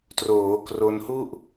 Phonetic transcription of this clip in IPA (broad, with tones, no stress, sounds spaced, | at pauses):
t r oː˩˦ k r o˧ n h u˥˩ ʔ